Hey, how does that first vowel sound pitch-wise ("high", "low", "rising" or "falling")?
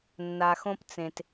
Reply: low